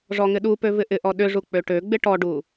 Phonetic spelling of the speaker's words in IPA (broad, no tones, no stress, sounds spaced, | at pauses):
ʐ ɔ ŋ ɪ ɗ u p ø v ɪ ʔ ɪ ʔ ɔ ɗ ʏ ʐ u k͡p ø ʈ ø ɡ͡b ɪ ʈ ɔ ɖ u